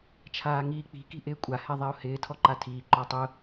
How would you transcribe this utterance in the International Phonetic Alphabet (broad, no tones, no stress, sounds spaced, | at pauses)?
t͡ʃʰ aː ŋ iː k͡p i̤ k i̤ ʔ ɪː kʷʼ a h ɛ ðˤ e ʊ̯ h ɪː tʰ ɔ ǃ a tʰ iː ǃ ɔ tˤ ʊ